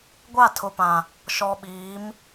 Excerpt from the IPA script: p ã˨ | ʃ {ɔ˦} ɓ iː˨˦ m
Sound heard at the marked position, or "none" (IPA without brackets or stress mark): ɔ˨